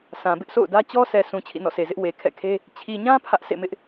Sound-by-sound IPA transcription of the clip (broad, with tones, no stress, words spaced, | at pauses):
sʰã˨ bɪ˦ʔsʰo̰˦˨ʊ̯dä˦ t͡ɕɔ˦sɛ˨ sũ˨ t͡ɕʰḭ˦˨nɔ̰˦˨se˨zɪ˦ʔ we˨ kʰɛ̰˦˨kʰe˦ | t͡ɕʰi˨ɲã˦ pʰä˦ʔ sʰḛ˦˨mɪ˦ʔ